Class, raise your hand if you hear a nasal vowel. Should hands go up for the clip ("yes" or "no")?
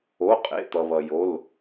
no